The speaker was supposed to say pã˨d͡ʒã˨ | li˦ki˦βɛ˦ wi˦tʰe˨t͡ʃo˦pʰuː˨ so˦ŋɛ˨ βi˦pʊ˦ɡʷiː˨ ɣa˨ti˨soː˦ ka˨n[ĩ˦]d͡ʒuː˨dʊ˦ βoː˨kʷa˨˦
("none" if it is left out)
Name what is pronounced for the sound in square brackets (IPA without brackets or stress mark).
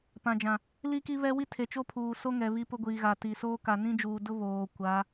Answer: ĩ˦